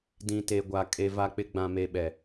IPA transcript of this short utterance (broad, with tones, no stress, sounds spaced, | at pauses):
d ĩ˨ t e˨ ɡʷ a˨ kʼ e˨ v a˨ k͡p ɪ˨ ɡ͡b ã˨ m e˨ ɓ ɛ˨